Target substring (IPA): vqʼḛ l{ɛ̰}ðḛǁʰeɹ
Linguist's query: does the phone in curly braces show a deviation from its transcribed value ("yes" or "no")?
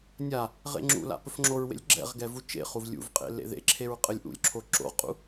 yes